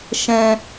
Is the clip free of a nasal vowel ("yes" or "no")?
no